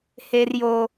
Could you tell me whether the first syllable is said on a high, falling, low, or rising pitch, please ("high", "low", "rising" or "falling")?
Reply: high